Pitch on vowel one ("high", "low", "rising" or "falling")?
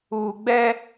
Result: low